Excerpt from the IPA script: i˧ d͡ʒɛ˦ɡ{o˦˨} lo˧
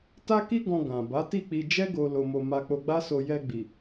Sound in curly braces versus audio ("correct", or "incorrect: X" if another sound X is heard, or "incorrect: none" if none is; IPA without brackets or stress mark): incorrect: o˧